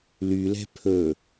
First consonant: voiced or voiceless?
voiced